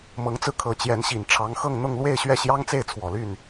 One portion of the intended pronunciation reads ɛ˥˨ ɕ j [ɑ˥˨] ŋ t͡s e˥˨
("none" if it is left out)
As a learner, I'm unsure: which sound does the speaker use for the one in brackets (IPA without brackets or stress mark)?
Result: ɑ˦